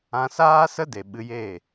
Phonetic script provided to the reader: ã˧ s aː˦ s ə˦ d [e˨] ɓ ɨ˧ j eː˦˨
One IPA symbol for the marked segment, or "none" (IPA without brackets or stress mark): e˨